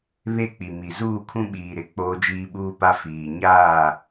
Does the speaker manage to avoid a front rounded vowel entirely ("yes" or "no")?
yes